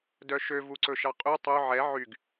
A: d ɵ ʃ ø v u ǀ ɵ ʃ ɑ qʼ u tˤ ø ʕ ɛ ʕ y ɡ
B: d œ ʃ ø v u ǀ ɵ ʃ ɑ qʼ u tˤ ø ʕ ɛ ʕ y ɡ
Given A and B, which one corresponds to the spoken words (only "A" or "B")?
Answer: B